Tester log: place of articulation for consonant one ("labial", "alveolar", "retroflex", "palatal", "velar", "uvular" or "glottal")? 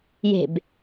palatal